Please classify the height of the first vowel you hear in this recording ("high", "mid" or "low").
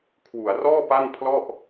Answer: high